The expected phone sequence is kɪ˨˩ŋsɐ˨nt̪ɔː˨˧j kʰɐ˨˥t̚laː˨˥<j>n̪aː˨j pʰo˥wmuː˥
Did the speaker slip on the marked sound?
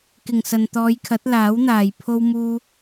yes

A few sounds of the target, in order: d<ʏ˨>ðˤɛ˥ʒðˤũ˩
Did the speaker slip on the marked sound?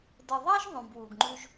yes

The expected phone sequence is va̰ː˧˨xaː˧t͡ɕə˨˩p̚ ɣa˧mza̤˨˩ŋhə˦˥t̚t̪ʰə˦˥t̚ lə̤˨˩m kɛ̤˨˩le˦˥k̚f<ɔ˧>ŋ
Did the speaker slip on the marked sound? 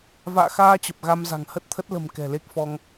no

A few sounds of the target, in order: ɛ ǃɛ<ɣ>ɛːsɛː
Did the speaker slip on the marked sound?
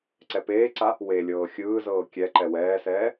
yes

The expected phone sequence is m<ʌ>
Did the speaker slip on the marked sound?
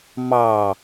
yes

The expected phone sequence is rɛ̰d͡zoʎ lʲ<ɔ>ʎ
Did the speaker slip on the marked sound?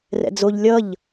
yes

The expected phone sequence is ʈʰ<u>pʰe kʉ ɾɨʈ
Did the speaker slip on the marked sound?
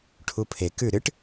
no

